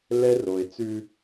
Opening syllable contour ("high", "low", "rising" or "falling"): high